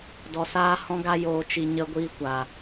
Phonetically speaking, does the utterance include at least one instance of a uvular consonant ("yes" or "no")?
no